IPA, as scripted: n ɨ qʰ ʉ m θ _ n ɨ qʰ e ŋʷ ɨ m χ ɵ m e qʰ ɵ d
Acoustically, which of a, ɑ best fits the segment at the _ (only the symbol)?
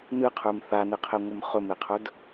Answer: a